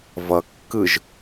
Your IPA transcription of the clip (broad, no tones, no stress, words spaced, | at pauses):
vʌ kːɯʒ